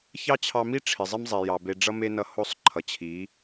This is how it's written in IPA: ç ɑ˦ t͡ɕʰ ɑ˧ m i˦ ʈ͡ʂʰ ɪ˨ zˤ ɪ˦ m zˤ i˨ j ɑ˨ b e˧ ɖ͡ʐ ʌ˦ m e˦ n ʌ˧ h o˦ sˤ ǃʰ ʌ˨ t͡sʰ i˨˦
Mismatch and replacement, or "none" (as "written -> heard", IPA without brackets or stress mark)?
t͡sʰ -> t͡ɕʰ